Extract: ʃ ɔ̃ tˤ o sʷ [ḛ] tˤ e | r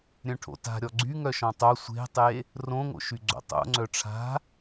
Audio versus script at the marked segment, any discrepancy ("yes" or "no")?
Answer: yes